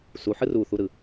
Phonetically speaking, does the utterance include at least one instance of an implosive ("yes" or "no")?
no